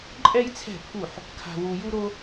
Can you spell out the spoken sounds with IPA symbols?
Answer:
ǃʼ ɛ˥ j t͡sʰ ɛ̤˥˨ pʰ u˥˨ ħ | kʰ a̤˥ w u˥ j u˥ ɾ o˥

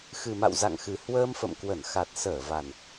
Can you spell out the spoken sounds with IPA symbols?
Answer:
x ɨ˨˩ m a̰˧˨ w z a̰˧˨ ŋ x ɨ˨˩ h w əː˧ m f ə̰˧˨ m k w ə˧˩ n x a˨˩ t̚ s əː˧˩ v a˨˩ n

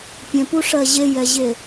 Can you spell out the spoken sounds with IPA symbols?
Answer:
pʲ ɛ̃ p u ʂ ɜ ʑ e j ɛ ʑ e

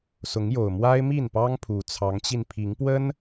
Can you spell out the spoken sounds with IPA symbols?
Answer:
s ʊ˨˦ ŋ j o˨˩ ʊ̯ m w a˦ ɪ̯ m i˥˨ n p ɑ˦ ŋ pʰ u˨˩ t͡sʰ ɑ˨˦ ŋ t͡ɕ i˧ n pʰ i˨˦ ŋ p w ə˦ n

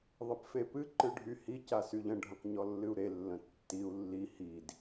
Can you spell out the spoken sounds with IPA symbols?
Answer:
ðˤ ə p f e p ɨ ǃ ɨ ɖʱ y h i c a s y ʎ ə̃ ɖʱ ə̃ q ɲ ɔ lː ɨ u̯ ɾ e lː ə̃ tː i u̯ lː i h i d

